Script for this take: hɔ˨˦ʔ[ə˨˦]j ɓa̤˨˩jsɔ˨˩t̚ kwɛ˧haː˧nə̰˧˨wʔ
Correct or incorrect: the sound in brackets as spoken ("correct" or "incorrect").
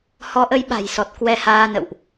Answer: correct